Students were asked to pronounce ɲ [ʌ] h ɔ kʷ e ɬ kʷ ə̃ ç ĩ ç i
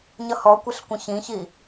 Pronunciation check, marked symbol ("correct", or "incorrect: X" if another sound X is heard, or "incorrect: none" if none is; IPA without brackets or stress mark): correct